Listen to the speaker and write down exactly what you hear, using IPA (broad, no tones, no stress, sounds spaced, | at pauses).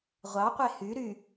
ʁʷ ɑ qʷ e h y ɾ y